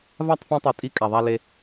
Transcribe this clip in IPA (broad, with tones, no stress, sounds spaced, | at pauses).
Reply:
v a˦˨ tˤ f ĩ˧ tˤ ɨ˨ tʼ i˧ kʼ a˨ ðˤ a˧ l e˧